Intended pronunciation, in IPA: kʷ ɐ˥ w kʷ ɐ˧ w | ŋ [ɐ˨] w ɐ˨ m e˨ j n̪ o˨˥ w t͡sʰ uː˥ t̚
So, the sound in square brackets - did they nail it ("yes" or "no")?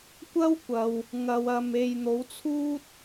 yes